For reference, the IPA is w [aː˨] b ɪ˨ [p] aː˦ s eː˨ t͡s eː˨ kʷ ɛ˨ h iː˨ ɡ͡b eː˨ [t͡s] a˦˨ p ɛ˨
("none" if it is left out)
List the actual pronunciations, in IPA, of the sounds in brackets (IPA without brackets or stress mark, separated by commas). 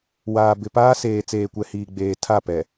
aː˨, p, tʰ